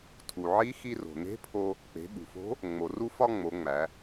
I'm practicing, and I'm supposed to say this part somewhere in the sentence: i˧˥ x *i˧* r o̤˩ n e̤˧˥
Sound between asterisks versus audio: correct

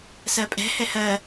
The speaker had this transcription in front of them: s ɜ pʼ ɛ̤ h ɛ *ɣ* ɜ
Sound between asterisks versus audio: incorrect: h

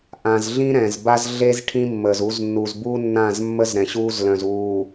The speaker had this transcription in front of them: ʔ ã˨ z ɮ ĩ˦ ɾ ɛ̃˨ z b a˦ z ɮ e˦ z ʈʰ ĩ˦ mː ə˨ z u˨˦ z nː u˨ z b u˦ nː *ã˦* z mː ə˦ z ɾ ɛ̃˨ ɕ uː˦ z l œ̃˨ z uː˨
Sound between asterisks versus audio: incorrect: ã˦˨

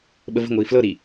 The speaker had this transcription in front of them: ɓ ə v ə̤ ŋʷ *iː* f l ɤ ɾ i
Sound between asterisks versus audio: correct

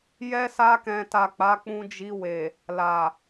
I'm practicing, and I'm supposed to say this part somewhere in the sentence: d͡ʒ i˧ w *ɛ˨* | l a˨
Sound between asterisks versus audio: incorrect: e˨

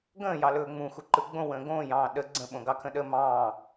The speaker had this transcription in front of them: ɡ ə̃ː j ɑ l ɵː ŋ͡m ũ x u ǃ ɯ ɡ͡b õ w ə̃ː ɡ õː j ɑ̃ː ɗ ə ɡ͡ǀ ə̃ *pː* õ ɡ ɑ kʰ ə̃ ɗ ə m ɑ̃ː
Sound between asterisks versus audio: incorrect: ɓ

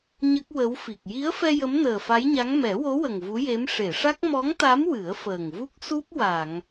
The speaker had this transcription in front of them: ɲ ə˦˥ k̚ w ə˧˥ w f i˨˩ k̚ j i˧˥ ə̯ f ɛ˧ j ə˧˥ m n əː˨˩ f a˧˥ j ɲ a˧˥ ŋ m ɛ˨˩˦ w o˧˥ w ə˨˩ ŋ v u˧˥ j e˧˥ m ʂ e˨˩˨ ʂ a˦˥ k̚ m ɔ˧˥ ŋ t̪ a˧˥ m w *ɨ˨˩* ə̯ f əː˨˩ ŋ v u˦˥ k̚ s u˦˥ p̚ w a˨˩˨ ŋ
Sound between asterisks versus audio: incorrect: ɨ˨˩˦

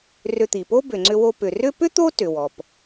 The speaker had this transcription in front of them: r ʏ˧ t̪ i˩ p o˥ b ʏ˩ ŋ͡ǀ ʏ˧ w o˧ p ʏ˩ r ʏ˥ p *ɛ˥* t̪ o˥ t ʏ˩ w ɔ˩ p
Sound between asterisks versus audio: incorrect: ʏ˥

